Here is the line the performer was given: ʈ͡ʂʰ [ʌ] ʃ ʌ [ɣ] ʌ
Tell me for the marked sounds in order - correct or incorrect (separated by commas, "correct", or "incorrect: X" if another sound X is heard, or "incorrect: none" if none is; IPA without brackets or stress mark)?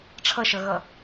correct, correct